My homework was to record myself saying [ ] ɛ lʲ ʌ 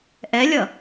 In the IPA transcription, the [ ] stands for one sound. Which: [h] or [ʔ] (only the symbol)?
ʔ